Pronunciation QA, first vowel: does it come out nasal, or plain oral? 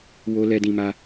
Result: oral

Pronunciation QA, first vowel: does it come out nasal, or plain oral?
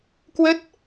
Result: oral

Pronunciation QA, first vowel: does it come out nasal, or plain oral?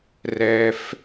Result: oral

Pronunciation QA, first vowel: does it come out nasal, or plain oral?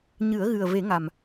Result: oral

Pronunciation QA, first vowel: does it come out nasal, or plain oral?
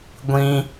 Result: nasal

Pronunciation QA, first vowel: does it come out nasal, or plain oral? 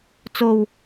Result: oral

